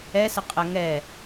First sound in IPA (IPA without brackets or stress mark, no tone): ɛ